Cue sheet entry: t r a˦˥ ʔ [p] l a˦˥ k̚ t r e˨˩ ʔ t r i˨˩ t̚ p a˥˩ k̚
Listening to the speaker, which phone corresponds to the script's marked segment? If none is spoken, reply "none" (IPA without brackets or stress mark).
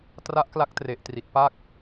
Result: k